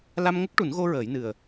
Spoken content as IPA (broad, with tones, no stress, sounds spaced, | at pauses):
l a˧ m ŋ ə˦˥ k̚ ʈ u˨˩˦ n ɣ o˧ ɹ əː˨˩˦ j n ɨ˨˩ ə̯